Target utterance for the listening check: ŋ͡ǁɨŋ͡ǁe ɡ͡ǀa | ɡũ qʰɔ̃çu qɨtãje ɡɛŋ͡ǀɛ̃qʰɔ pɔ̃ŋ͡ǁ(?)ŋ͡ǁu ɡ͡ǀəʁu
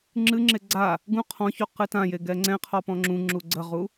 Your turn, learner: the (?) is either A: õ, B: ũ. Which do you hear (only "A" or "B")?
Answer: B